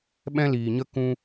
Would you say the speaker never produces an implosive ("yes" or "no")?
no